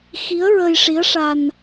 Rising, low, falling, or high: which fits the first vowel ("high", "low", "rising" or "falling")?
rising